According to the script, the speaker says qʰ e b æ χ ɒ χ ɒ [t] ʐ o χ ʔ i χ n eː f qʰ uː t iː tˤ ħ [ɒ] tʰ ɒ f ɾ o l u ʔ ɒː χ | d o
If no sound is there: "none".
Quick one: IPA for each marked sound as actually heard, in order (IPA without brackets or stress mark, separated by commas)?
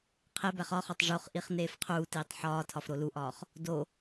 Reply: tˤ, ɒː